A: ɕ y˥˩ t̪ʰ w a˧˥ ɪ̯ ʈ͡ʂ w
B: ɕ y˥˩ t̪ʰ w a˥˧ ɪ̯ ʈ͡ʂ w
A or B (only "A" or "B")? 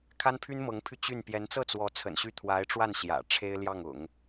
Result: A